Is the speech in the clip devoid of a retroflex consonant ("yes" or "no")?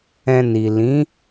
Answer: yes